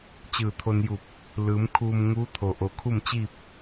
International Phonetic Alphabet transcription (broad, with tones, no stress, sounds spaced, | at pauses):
t͡ɕ ɯː˧˩ t̪ʰ o˧ n j u˧˩ p̚ | l ɯː˩˧ m kʰ uː˧ m ŋ uː˧˥ t̪ʰ o˩ ʔ o˩ kʰ u˥˨ m t͡ɕ iː˥˨ p̚